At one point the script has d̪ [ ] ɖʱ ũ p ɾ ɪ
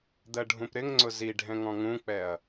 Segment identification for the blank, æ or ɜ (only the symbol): ɜ